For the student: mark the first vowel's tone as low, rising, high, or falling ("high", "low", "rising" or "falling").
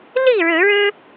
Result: falling